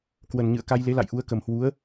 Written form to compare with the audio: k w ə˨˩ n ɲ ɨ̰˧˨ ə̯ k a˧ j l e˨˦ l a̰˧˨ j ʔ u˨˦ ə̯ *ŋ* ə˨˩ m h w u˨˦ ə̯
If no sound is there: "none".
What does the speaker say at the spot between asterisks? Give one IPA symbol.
k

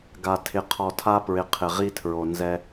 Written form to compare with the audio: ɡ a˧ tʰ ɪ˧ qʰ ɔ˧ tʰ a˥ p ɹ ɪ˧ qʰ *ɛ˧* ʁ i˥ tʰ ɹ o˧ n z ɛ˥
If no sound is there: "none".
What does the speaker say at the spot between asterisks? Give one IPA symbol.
ɪ˧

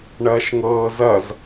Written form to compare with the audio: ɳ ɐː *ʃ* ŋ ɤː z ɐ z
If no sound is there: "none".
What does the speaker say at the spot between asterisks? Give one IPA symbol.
ʃ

